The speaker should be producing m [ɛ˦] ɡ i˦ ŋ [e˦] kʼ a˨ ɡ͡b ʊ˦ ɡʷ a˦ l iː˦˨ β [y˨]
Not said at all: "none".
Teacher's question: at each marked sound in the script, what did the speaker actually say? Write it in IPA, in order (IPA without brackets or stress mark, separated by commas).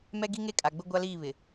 ɛ˦, e˦, ɪ˨